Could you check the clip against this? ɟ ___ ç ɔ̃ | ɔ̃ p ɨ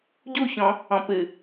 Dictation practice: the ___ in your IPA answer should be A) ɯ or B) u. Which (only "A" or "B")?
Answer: B